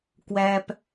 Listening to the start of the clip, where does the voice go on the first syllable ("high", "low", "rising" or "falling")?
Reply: low